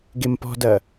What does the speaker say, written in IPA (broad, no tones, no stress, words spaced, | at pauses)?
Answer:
ɡempɔ̤dɐ